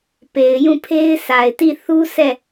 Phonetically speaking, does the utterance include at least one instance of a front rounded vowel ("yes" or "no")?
no